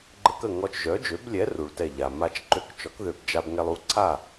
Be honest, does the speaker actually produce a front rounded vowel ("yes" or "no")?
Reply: yes